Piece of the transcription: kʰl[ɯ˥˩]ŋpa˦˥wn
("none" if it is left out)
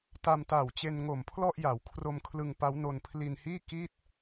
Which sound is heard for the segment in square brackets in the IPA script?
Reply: ɯ˧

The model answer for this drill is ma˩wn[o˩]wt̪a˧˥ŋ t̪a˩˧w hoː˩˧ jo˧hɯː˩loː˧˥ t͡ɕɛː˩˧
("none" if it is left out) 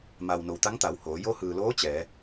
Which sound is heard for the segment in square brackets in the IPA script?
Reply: o˩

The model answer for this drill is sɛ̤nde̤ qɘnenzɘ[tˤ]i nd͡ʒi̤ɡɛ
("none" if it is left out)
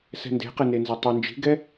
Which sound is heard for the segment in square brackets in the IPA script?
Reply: tˤ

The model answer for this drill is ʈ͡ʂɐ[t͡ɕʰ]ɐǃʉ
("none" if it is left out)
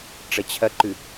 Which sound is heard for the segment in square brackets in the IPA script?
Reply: t͡ɕʰ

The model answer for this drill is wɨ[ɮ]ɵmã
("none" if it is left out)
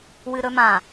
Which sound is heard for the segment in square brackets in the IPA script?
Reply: ɾ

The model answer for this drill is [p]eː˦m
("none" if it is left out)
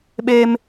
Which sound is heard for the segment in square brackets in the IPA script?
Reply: ɓ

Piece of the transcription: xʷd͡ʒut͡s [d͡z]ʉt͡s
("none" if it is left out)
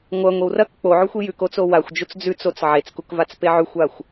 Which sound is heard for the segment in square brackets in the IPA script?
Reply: d͡z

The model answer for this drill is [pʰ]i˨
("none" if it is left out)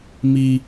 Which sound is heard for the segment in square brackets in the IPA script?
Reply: m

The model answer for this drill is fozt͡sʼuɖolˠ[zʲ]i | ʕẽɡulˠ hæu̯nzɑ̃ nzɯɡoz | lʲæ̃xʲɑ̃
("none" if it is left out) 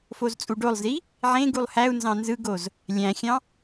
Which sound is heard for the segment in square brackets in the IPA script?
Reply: z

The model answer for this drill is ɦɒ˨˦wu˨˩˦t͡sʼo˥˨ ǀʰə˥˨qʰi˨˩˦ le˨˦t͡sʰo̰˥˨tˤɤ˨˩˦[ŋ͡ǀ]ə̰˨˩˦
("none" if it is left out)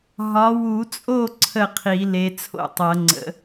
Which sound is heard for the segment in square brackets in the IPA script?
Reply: ŋ͡ǀ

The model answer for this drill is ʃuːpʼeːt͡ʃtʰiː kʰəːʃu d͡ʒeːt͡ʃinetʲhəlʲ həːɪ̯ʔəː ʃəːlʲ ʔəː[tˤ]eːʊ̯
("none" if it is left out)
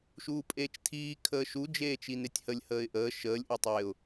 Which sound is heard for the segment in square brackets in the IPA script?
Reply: tˤ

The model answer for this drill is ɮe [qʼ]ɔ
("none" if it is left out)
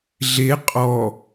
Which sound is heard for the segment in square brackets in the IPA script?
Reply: qʼ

